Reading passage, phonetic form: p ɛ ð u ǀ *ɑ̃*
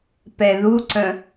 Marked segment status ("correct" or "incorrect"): incorrect